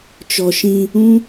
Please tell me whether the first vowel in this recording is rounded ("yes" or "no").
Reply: yes